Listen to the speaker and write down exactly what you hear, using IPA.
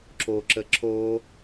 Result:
ǁ o ǁ ə ǁ o

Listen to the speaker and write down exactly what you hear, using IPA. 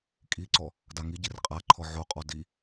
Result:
kʼ i ǀ ɔ | d a ŋ i ɟ i r qʼ a ǃʰ ɔ ʕ o qʼ ɔ d i

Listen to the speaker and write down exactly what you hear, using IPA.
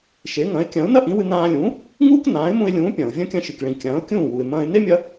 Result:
ʃ e˩˥ ŋ ɐ̃˩˥ ɪ̯ kʲ ɐ̃ː˩˥ ʊ̯ n ɐ˥ ʔ ĩ˩˥ w ɨ˧ n ãː˧ lʲ ũː˩˥ | ŋ uː˥ k n ãː˩˥ ɪ̯ m ũ˧ ɪ̯ lʲ ũː˩˥ pʲ ɐ̃ː˩ ʊ̯ vʲ ɐ̃˥ kʲ ɐ̃˧ ʃ ɨ˩ k ɭ ĩ˩ kʲ ɐ̃ː˩˥ ʊ̯ kʲ ũː˥˩ w u˩ ɪ̯ m ɐ̃ː˧ ɪ̯ n e˥ mʲ ɐ˧

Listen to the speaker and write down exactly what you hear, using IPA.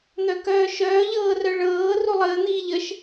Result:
n̪ œ k œː ʃ œː ʎ ɤː r œ ɭ ɤː r u lˠ əː n̪ iː ʎ ə ʃ

